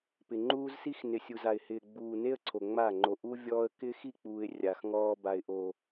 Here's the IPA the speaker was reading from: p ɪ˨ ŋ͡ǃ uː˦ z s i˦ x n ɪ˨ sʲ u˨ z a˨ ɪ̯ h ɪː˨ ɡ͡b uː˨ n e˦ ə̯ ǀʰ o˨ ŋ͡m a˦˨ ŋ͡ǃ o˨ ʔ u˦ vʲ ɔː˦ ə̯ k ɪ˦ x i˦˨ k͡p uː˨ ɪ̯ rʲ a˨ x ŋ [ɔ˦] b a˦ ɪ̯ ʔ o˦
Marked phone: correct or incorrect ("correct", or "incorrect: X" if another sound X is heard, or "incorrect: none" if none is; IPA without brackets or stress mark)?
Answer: incorrect: ɔː˦